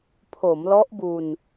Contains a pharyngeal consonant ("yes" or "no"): no